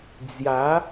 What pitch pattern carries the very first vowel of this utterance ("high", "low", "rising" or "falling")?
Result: rising